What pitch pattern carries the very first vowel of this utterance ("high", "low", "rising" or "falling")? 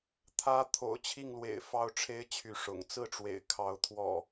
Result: high